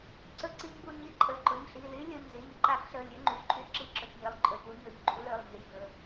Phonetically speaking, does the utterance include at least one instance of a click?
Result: yes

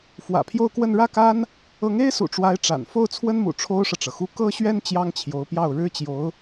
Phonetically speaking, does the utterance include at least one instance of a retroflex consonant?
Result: yes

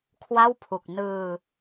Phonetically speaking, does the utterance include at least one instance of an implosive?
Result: no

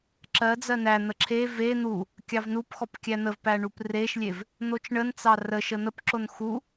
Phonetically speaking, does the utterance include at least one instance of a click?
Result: yes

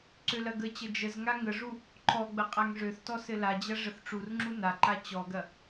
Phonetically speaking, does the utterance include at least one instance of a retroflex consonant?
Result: yes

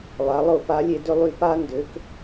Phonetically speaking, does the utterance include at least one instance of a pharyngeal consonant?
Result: no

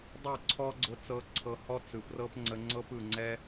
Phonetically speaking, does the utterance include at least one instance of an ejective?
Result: no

